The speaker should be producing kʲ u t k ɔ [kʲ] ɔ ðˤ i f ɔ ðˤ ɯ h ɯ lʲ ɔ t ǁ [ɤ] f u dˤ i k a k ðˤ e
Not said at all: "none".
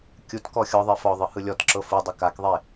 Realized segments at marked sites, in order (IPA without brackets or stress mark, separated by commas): xʲ, ɤ